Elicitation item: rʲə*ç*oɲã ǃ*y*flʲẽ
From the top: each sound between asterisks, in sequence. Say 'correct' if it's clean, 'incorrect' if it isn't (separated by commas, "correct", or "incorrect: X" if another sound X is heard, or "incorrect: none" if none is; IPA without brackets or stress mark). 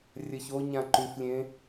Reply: correct, correct